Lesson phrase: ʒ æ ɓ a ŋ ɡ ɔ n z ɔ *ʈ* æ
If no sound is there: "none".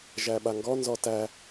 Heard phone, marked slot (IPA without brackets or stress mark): t